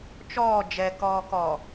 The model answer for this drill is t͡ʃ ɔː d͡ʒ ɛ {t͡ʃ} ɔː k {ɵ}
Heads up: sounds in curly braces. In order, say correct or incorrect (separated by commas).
incorrect, incorrect